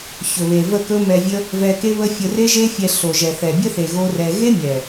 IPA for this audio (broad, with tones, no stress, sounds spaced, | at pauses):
ç ɵ˨ β e˨ v ə˦˨ k ɵ˦ m ɛ˧ vʲ ə˦ | v ɛ˧ k e˦ β ə˦ fʲ ə˧ r e˦ ʒ e˦ fʲ ɛ˧ ɬ o˨ ʒ ɛ˨ θ ɛ˨ bʲ ə˦ θ e˨ ɣ o˦ r ɛ˧ ɣ e˦ mʲ ɛ˨